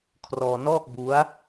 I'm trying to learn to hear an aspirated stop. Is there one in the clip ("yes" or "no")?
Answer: yes